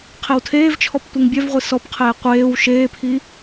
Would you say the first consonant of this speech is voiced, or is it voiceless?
voiceless